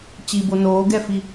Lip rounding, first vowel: unrounded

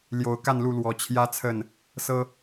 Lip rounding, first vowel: rounded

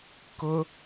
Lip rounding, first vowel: rounded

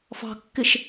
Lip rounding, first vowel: unrounded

